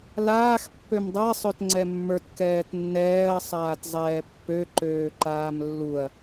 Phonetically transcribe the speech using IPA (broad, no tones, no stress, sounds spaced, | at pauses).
l aː x pː ø m dˤ a sˤ ø t ŋ͡ǀ ɛ mː ə˞ t k ɛː t nː ɛː ɐ̯ sˤ aː t zˤ ɛː pː ø ǃ øː ǃ aː m lː u ɐ̯